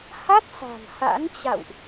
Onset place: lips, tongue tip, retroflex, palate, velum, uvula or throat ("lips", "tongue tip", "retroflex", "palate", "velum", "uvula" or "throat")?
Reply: throat